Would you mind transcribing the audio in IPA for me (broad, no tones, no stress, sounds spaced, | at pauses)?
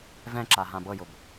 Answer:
v ɛ̃ ǁ a ɦ ã b ɤ j ʊ b